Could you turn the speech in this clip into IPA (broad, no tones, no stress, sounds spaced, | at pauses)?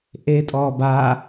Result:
ʔ eː tʼ ɔː b aː